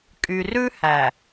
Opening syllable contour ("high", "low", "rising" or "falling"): low